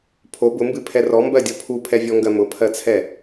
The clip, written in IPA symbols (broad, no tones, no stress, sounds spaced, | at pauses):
pʰ o b ʊ m b ɨ pʰ ɛ r ɔ m b ɜ dʲ ɔ pʰ u pʰ ɛ vʲ ɔ ŋ ɡ ɜ m ʊ pʰ ɜ t͡sʰ ɛ